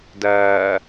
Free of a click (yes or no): yes